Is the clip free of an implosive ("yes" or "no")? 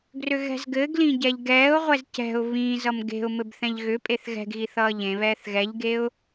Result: yes